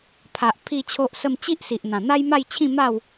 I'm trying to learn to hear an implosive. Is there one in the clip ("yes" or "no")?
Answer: no